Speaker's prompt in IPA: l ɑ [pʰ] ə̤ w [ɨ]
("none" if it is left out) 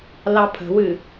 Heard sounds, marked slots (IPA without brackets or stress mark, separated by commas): pʰ, ɨ